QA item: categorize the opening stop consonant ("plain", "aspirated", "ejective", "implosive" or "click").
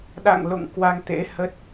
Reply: implosive